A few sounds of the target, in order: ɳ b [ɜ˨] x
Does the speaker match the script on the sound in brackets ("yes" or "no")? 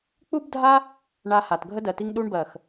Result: yes